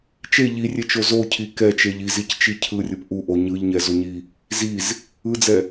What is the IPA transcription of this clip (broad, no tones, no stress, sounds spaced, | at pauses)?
t͡ʃ e ʎ i rʲ e t͡ʃ o z o cʰ i k ɛ t͡ʃ e ʎ i z i c t͡ʃ i cʰ ɯ rʲ ɯ p ʔ u ʔ o ɲ ɯ ʎ ɲ ɛ z o ɲ i | z i z | ɯ d͡z ɛ